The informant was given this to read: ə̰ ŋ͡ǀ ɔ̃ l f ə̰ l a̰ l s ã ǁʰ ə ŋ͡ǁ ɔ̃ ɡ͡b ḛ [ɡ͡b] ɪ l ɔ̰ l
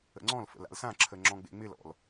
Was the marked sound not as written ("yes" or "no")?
yes